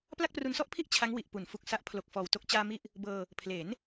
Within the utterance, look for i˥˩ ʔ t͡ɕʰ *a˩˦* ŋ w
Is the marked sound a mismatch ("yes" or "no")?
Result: yes